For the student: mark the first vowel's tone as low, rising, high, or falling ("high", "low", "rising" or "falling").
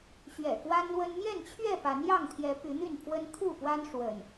low